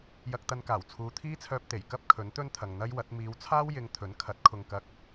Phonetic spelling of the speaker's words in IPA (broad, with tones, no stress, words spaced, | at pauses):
jɐ˧k̚t̪ɐ˧nkaː˨˩wt͡sʰuː˨˧ t̪ʰiː˥t͡sʰœː˧p̚t̪e˨˩j kɐ˥p̚ kʰɵ˨˥nt̪ɵ˥nt̪ʰɐ˨ŋ n̪ɐ˥jwɐ˨˥t̚ miː˨˧wt͡sʰaː˥wjɪ˨˧ŋ t̪ʰɵ˨˥nkʰɐ˨˥t̚kʰʊ˧ŋ kɐ˧k̚